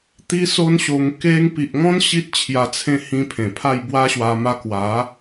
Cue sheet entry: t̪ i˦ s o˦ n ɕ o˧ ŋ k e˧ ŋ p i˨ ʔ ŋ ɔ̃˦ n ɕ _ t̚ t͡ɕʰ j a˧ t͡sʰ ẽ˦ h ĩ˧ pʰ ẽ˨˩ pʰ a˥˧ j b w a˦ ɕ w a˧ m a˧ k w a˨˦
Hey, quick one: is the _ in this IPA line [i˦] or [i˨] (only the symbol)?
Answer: i˦